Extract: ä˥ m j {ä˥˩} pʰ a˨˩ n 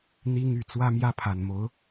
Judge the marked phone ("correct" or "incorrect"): incorrect